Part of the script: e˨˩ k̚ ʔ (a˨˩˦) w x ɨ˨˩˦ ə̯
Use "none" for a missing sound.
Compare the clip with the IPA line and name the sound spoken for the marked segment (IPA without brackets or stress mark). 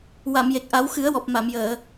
a˨˩˦